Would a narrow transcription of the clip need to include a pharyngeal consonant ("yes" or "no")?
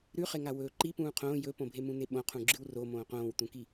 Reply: no